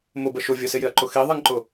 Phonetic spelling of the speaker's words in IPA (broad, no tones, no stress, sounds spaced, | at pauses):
m ʊ b ə ʃ ʊ vʲ ə s ɪ j ɪ ɐ̯ ǃ ʊ x i ðˤ ɛ ŋ ǃ ʊ